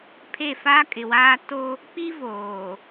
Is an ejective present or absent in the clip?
present